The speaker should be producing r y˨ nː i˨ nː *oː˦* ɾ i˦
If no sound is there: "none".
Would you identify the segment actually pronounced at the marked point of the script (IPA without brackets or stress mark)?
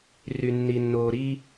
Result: oː˨